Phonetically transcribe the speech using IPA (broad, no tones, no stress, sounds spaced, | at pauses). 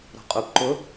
ɾ ɔ̤ qʼ o p ǃ ʊ